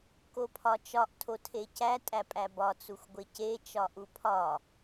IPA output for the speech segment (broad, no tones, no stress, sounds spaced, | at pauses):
k o pʰ ɒ t͡ʃ ɒ ʔ tʰ o tʰ e c æ tʼ æ pʼ æ b ɒ t͡s u xʷ ɡʷ e c e t͡ʃ ɒ ʔ u pʰ ɒ